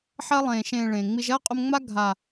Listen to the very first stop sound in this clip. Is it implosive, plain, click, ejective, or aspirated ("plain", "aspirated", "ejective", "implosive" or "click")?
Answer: ejective